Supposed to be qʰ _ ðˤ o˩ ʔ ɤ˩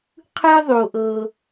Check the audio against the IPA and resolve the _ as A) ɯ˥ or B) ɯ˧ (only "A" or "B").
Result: B